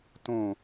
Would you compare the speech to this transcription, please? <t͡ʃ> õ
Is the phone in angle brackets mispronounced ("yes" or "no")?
yes